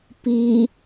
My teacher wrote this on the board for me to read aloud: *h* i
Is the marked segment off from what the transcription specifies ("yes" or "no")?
yes